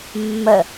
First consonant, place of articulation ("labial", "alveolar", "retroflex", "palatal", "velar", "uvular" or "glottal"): labial